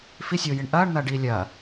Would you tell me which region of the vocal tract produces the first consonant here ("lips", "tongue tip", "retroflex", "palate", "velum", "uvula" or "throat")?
lips